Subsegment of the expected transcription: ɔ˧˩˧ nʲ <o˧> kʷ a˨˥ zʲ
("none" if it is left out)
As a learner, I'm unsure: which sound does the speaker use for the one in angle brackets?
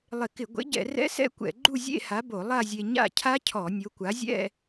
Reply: o˨˥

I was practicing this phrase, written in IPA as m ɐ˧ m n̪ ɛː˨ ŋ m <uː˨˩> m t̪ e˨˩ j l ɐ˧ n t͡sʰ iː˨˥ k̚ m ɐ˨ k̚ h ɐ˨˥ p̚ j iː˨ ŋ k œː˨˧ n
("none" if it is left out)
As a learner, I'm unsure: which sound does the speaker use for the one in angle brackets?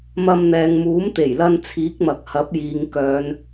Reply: uː˨˥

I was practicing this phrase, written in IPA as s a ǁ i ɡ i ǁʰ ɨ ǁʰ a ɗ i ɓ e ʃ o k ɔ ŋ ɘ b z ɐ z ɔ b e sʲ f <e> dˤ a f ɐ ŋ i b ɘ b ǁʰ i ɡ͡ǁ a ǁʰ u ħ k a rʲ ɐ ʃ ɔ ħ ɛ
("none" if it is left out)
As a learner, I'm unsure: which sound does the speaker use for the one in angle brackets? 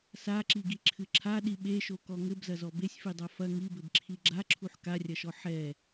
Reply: i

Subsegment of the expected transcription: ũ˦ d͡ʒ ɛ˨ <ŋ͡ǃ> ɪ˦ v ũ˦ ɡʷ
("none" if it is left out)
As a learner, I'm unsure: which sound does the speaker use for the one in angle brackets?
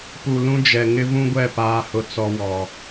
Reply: ŋ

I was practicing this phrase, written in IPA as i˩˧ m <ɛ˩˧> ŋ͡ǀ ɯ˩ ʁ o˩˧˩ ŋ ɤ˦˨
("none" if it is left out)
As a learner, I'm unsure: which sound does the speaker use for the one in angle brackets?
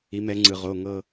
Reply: ɛ˩˧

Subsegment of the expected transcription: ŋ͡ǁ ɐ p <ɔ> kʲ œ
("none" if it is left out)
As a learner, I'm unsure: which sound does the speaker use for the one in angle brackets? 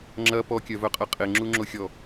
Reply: ɔ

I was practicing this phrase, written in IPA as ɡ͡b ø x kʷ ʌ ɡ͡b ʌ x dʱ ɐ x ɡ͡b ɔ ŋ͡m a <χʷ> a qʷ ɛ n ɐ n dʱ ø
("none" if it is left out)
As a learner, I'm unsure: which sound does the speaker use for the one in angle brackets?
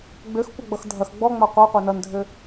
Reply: qʷ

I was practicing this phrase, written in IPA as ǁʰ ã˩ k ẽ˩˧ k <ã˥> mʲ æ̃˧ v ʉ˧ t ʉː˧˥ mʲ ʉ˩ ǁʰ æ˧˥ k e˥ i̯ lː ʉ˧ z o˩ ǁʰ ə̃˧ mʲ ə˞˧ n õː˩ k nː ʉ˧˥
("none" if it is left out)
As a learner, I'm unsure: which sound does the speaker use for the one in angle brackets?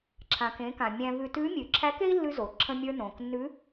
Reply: ã˩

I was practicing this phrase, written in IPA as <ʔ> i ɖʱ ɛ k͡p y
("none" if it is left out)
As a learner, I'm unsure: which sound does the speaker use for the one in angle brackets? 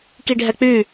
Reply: k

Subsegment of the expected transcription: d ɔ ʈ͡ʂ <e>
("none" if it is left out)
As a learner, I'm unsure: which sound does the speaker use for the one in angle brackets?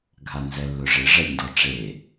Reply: e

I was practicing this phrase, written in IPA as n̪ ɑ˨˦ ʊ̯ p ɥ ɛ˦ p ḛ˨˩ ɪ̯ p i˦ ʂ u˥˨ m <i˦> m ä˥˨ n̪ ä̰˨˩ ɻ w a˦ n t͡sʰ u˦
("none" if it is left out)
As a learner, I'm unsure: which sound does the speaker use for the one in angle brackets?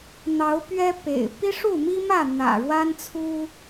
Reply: i˦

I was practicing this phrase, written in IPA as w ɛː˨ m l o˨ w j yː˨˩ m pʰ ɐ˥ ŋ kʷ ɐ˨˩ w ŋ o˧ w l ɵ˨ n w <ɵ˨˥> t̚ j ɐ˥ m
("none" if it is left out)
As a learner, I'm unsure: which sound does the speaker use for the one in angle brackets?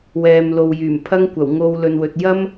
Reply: ɵ˨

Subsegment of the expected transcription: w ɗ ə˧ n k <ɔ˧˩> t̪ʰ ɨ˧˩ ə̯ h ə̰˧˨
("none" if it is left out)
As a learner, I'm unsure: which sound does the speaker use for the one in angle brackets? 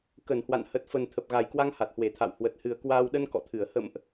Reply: ɔ̰˧˨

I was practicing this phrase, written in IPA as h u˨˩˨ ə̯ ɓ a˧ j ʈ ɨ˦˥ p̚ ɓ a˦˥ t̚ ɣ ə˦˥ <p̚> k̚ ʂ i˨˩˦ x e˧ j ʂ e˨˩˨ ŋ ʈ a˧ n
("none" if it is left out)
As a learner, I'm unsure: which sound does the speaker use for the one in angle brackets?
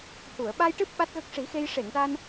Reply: none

